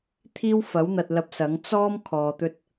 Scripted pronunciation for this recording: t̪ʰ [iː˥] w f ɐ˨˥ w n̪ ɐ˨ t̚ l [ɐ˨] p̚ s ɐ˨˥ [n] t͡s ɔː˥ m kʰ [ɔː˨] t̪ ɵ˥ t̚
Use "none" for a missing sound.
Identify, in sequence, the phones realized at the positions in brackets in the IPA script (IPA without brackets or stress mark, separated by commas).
iː˥, ɐ˧, ŋ, ɔː˨